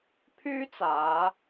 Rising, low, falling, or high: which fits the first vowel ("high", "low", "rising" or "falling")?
high